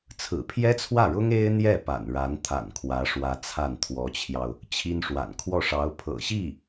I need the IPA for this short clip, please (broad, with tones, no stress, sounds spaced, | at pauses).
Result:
t͡sʰ ɹ̩˨˩ pʰ j ɛ˥ t͡sʰ w ä˥˩ ɻ ʊ˥ ŋ e˥ ɪ̯ n̪ j ɛ˥˩ p a̰˨˩ n ɻ a˧˥ n t̪ʰ a̰˨˩ n kʰ w ä˧˥ ʂ w ä˧˥ t͡sʰ a˥˩ n t̪ʰ w ɔ˧˥ t͡ɕʰ j ɑ˧ ʊ̯ | t͡ɕʰ i˥ n ʂ w a̰˨˩ n kʰ w ɔ˥˩ ʂ ɑ˧˥ ʊ̯ pʰ ɤ̰˨˩ ɕ i˥˩